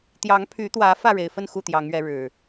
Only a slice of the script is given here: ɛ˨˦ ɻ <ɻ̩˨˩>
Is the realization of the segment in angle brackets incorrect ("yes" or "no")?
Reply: no